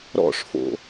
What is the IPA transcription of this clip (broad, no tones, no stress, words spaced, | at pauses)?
ɾɔ̰ʂfo̰